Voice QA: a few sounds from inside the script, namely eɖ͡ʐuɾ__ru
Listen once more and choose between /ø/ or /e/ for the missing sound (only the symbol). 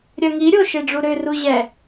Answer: ø